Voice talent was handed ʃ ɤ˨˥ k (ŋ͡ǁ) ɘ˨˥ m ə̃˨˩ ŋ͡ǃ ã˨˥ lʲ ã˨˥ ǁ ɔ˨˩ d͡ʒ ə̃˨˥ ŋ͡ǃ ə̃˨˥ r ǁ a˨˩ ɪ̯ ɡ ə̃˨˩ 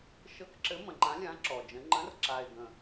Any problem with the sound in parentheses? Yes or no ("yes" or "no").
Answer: yes